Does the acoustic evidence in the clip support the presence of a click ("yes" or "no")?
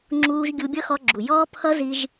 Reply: yes